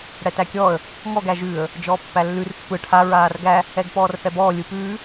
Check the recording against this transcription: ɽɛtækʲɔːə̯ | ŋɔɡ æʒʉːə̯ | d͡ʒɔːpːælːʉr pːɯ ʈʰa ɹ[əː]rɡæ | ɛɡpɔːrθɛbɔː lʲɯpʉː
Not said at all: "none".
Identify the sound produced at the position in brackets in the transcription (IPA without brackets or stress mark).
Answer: aː